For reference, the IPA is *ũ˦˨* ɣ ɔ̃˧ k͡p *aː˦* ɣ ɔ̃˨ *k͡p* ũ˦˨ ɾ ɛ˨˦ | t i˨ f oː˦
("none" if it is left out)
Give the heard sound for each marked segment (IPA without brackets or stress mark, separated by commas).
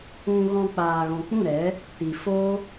ũ˧, aː˨, k͡p